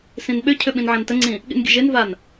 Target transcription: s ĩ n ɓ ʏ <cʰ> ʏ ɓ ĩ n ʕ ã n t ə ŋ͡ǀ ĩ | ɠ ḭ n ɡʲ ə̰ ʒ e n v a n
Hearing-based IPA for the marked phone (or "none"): cʰ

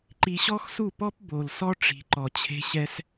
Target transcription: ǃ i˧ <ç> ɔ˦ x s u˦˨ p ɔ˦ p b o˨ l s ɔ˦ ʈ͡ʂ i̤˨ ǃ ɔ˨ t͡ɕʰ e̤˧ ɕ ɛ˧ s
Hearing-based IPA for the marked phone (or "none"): ɕ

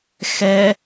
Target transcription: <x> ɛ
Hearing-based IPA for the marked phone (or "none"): x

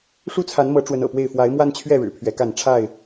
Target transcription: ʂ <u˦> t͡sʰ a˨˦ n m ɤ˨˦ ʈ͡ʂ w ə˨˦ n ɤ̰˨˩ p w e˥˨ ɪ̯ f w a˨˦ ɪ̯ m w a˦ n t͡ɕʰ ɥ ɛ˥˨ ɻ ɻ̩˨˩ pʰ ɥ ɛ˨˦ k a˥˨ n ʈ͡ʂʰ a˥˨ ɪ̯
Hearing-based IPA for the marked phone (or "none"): u˦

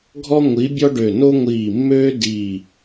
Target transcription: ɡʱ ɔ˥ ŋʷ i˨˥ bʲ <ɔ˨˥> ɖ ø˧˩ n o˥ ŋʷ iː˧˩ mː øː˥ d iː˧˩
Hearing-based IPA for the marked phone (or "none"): ɔ˥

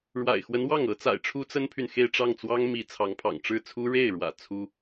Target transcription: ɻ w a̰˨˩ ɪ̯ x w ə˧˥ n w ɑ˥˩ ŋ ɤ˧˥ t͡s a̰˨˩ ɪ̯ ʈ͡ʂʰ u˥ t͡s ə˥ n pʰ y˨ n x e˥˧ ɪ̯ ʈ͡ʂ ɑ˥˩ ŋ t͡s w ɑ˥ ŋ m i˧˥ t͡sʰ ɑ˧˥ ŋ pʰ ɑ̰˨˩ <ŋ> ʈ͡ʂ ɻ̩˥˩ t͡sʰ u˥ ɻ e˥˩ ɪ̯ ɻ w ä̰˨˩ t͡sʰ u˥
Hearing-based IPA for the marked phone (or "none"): ŋ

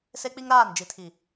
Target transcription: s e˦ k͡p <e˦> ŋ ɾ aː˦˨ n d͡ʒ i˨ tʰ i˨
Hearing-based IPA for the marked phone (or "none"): i˦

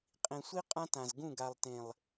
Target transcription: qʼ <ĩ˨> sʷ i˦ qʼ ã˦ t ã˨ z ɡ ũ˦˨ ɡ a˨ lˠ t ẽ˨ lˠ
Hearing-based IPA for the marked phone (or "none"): ĩ˨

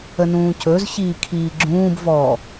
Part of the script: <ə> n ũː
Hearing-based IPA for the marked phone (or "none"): ə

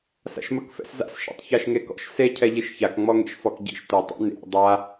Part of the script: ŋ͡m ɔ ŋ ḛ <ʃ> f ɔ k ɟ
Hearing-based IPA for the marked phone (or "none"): ʃ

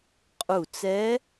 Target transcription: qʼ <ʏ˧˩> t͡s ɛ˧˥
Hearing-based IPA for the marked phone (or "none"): u˧˩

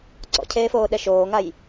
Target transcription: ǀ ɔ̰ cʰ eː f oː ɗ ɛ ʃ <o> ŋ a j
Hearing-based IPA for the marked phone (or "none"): oː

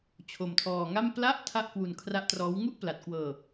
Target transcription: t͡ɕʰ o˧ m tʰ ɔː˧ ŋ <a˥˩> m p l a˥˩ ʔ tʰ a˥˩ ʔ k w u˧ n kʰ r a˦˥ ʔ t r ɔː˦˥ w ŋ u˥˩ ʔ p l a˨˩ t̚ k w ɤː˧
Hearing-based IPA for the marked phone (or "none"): a˥˩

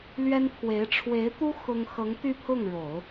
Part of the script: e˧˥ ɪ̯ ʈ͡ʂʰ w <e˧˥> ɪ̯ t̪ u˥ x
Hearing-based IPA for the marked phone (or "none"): e˧˥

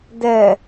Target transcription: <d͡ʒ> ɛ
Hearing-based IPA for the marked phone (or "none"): d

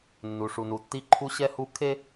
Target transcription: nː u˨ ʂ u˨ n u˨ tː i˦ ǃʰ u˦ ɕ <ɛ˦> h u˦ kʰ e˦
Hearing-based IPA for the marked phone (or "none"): ɛ˦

